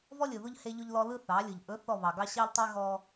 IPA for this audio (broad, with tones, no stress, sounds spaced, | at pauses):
v ɔ˦ lʲ ɯ˨ ð ʊ˦ ʎ h e˦ ʎ ʊ˦ ʎ l ɔ˦ l ɯ˦ θ ɑ˨˦ lʲ ɯ˨ ʎ ʔ ɵ˨˦ θ ɔ˦˨ β ɑ˨ ɡ ɑ˦ ɕ ɑ˦ ʎ tˤ e˦ ɣ ɔ˦